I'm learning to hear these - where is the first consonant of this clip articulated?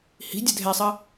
throat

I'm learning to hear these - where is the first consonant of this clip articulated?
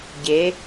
palate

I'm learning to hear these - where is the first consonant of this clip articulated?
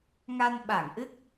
velum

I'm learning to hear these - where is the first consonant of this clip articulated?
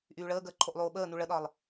throat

